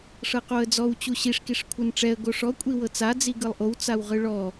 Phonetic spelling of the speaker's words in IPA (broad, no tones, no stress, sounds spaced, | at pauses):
ʂ ɤ q o ə̯ d͡z ɔ w t͡ɕ u ɕ i ʂ k i ʂ kʷʰ ɯ n ʈ͡ʂ ɛ ə̯ ɡ o ʂ ɔ kʷʼ i w ɤ t͡s a d͡z i ɡ ɯ lˠ ʔ o w t͡s a w ʁ ɯ ɭ ɔ